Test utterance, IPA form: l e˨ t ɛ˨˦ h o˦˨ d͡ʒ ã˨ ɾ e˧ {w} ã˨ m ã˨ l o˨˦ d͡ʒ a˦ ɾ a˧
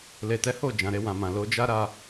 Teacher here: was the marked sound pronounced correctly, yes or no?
yes